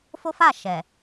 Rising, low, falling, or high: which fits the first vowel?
high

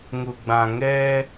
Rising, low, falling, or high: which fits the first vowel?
low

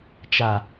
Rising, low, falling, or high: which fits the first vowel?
low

